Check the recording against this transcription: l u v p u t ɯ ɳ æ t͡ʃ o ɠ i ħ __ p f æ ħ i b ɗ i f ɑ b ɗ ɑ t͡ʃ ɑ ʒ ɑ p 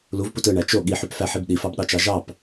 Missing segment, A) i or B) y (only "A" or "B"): B